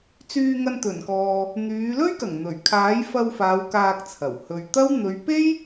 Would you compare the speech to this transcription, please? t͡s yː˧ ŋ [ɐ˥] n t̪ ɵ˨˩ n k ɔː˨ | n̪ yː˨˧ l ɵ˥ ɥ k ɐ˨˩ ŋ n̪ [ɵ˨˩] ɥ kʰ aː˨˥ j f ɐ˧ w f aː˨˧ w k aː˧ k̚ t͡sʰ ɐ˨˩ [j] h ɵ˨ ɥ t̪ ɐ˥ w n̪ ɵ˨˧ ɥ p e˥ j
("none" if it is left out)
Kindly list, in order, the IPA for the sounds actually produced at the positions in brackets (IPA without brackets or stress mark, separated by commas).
ɐ˧, ɵ˨˩, w